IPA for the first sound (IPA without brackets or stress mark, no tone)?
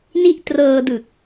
n